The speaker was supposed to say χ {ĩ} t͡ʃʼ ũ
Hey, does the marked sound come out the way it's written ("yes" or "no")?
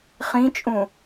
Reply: yes